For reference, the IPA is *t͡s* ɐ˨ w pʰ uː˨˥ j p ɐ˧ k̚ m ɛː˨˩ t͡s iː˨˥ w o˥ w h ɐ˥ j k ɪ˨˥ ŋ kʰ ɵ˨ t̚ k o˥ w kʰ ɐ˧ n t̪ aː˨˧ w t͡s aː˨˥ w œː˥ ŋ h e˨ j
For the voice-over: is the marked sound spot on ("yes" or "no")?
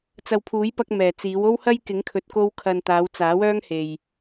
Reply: yes